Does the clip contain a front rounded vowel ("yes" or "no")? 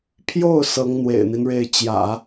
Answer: no